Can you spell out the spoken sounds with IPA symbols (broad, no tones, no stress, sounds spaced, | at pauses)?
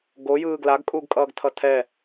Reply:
ɡ o j ɯː ɡ l a ɡ kʼ uː ɡ kʼ ʌː ɡ tʰ ʌ tʰ ɛ